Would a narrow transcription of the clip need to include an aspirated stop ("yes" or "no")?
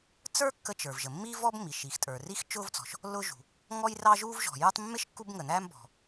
no